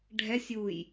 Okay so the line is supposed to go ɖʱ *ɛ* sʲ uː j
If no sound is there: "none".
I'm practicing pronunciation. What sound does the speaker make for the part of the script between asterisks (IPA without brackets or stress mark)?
ɛ